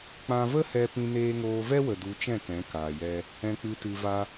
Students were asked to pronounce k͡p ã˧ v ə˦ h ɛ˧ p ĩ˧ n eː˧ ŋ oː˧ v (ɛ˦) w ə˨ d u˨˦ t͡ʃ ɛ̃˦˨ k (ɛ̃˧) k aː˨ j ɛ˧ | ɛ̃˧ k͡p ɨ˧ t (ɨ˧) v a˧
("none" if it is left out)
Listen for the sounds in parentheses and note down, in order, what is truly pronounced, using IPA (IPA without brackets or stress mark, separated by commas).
ɛ˦, ɛ̃˨˦, ɨ˧